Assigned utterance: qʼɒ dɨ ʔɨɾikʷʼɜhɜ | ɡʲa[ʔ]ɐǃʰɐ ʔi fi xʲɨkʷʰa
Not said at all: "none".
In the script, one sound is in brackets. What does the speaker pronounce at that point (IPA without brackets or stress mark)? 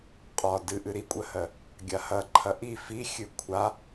h